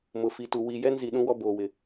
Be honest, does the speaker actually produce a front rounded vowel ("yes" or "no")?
no